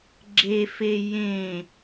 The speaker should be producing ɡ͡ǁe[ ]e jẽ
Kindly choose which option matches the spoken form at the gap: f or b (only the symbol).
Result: f